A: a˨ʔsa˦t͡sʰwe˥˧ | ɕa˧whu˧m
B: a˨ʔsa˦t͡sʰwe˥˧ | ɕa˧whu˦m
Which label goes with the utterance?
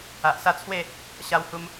A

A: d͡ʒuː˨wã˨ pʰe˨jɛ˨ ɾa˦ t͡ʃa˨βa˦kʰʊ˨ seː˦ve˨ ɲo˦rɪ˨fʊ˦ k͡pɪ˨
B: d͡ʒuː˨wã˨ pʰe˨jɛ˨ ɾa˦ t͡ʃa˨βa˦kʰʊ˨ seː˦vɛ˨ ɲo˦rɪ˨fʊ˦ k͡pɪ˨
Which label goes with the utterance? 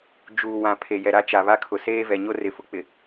B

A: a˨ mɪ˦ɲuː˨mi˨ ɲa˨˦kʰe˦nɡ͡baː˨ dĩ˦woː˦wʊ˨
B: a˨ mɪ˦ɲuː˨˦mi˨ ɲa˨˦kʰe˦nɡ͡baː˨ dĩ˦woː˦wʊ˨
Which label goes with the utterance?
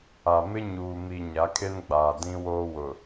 A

